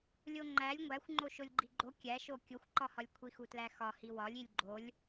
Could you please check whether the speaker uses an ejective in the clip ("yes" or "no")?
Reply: no